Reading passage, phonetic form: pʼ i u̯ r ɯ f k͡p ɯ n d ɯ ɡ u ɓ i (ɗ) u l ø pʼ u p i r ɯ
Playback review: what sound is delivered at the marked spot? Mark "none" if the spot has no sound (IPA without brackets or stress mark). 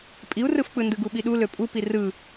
ɗ